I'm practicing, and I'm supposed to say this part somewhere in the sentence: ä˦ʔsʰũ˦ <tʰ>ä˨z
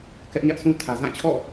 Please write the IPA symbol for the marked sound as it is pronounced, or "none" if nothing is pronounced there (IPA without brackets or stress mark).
tʰ